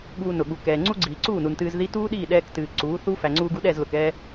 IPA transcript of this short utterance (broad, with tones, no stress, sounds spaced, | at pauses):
ɠ uː˧ n ʊ˨ ɠ u˨ k ɛː˨ ŋ͡ǀ u˦ ɡ͡ǀ iː˨ ǀ uː˦˨ n u˨ n t ɨː˧ z ð i˦ t uː˦ ɗ iː˦˨ ɗ ɛː˧ k t ɨː˨ ǀ uː˨˦ θ u˦ f æ˨ ŋ͡ǀ uː˧ ɡ u˧ ɗ ɛ˦˨ z l ʊ˨ k ɛː˧